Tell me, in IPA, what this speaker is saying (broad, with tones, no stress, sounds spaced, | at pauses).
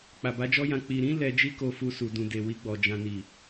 k͡p a˨ b a˨˦ d͡ʒ ɔ˦ j ã˧ k͡p i˨ ɾ ĩ˨˦ l ɛ˧ d͡ʒ i˦ k o˧ f u˧ s u˧ d ũ˧ d e˨ w i˧ ɡ͡b ɔ˨ d͡ʒ ã˨ n i˨